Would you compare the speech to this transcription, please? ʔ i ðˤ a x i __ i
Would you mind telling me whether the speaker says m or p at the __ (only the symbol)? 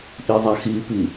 p